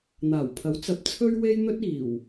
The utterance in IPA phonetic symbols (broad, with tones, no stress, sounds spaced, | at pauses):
n̪ aː˨˩ w pʰ ɐ˨˥ w t͡s ɐ˨˥ p̚ t͡sʰ ɵ˥ ɥ w e˥ j n̪ ɵ˥ t̚ iː˨˩ w